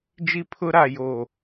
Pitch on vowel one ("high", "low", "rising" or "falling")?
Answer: high